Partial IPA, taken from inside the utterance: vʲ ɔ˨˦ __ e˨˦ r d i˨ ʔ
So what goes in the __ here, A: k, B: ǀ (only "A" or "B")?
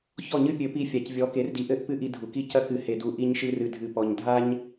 A